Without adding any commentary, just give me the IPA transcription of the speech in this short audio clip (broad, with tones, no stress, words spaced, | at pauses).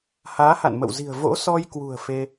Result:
haː˨˦ha̰˧˨nmə̰˧˨wzi̤˨˩ə̯ vo̰˧˥sɔ˧j kwṳ˨˩ə̯ fe˧